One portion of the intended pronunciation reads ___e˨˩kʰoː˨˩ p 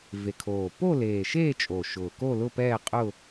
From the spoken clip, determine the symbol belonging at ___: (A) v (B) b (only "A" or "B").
A